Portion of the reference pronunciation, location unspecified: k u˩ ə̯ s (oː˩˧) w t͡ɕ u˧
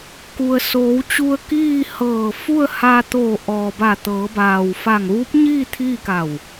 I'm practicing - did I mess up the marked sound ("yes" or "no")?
no